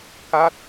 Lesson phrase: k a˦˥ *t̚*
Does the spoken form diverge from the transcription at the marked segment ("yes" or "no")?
no